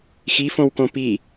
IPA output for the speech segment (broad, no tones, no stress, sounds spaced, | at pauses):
x i f õ w k õ p i